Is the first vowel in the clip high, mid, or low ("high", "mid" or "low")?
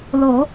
mid